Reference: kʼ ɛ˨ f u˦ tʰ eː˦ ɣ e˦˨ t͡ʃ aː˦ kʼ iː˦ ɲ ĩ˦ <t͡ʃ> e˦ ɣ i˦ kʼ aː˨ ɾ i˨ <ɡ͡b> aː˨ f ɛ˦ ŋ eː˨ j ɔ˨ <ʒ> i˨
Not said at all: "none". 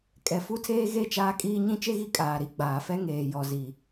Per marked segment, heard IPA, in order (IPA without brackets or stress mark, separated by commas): t͡ʃ, ɡ͡b, z